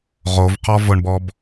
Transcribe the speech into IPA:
ʁ o v q ɔ v ʊ ɳ b ɔ b

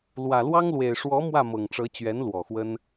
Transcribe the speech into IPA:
l w ä˨˩ l w ɑ˥ ŋ l w e˨˩ ɪ̯ ʂ w ɔ˧˥ m w ä˥˩ m ɤ˨˩ ŋ ʈ͡ʂ ɤ˧˥ t͡ɕ ɥ ɛ˧˥ n l w ɔ˨˩ x w ə˥ n

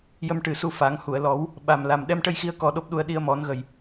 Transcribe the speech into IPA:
j ə˧ m ʈ ɨ˨˩ s u˧ f a˨˩˦ ŋ h u˨˩˨ ə̯ l ɔ˨˩˦ w | ɓ a˨˩ m l a˨˩ m ɗ ɛ˧ m ʈ ə˧ j x i˧˥ ə̯ k ɔ˧ ɗ o˦˥ p̚ ɗ u˧ ə̯ ɗ i˧ ə̯ m ɔ˨˩˦ n ɣ ə˨˩ j

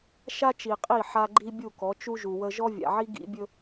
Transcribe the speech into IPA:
ʃ a˦ t͡ʃ i˨ qʼ i˦˨ ħ a˦ ɡ͡ǃ i˦ bʲ u˦˨ k ɔ˨˦ t͡ʃ u˦ ʒ u˨ w ə˦ ʒ ɔ˦ vʲ a̰˨ ʕ i˦ ɡ ḭ˦ bʲ ɵ˦

